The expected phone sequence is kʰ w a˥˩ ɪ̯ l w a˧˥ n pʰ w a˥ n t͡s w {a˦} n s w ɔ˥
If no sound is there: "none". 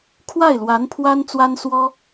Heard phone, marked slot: a˥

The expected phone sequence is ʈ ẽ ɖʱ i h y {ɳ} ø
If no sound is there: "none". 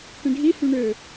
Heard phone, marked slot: ɳ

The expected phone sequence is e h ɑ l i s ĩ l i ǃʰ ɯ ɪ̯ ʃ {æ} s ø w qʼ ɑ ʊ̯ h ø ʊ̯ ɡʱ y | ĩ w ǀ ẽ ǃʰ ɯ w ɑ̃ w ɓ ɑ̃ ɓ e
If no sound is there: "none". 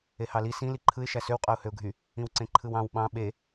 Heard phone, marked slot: æ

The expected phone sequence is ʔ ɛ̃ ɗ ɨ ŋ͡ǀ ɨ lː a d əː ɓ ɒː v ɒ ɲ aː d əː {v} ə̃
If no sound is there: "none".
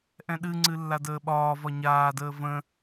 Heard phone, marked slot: v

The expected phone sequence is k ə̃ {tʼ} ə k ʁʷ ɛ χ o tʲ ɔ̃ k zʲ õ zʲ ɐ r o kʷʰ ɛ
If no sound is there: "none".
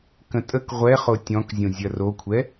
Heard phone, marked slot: tʼ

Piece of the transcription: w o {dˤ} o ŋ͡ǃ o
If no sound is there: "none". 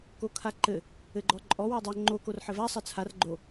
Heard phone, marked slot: dˤ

